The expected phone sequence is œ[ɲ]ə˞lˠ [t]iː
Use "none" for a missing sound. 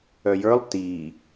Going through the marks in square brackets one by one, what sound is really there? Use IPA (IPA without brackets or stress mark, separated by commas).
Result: j, t